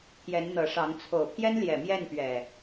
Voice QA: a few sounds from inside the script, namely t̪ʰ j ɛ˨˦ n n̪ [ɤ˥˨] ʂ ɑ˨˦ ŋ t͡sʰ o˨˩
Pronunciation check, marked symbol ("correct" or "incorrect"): incorrect